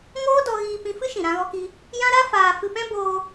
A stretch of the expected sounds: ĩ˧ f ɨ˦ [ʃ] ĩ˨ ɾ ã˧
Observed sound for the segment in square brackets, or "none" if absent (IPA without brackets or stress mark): ʃ